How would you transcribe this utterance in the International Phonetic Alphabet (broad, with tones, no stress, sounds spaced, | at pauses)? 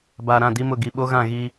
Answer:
b aː˨ ɾ ã˦˨ d i˦ m ʊ˦˨ ɡ i˨ ɓ o˦ ɣ ã˦˨ ɣ i˦